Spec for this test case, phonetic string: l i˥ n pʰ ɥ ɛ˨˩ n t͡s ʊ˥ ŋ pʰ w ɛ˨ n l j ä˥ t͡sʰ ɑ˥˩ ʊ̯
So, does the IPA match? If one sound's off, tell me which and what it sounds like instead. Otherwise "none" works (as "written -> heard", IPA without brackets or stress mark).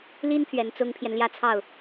w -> j